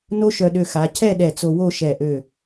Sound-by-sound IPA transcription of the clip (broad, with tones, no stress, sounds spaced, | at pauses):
n o˥ ʃ œ˧ ɗ ø˧ x a˩˧ cʰ ɛ˥˧ ɗ ɛ˧˩ t͡s o˧ w o˥˧ ʃ ɛ˧˩ ʔ ø˧˩